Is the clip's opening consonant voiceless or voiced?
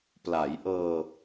voiceless